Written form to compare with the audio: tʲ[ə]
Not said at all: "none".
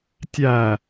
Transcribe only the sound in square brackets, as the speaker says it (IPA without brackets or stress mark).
æ